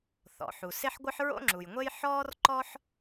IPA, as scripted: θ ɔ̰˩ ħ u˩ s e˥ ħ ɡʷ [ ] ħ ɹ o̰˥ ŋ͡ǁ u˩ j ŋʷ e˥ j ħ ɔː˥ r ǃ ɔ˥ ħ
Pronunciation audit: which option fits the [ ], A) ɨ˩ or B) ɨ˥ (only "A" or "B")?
B